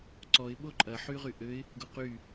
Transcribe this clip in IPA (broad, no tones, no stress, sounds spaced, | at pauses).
ǀ ɔ ɪ̯ ɓ o ǃʼ ɐ ħ y ʁ y ʔ ø ɪ̯ | ɡ o q y